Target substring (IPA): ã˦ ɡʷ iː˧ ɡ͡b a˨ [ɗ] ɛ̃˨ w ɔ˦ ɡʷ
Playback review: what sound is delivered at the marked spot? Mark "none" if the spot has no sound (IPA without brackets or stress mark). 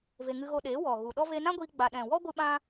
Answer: ɗ